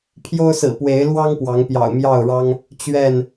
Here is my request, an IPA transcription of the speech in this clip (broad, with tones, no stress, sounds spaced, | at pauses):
pʰ j o˦ ʊ̯ s ɹ̩˨˩ p w e˨˦ ɪ̯ l w ɑ˦ ŋ p w ɑ˨˦ ŋ p j ɑ̰˨˩ ʊ̯ m j ɑ˥˨ ʊ̯ ɻ ɑ˦ ŋ | t͡ɕ ɥ ɛ˥˨ n